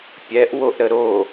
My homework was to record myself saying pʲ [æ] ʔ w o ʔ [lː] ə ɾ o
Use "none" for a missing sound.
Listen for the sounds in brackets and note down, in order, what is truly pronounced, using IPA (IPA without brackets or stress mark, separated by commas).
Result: ɛ, ɾ